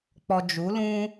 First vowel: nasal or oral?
oral